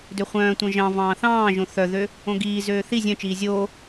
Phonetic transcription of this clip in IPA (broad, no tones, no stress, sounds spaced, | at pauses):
d ø χʷ œ̃ː tʷ œ̃ ʒ ɑ̃ v ɑ̃ː θ ɑ̃ː ʒ õ θ œ ð ø | õ ɡ iː z øː θ i zʲ œ̃ t͡ʃ iː zʲ oː